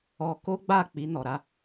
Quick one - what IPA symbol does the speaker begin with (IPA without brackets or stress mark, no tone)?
ɔ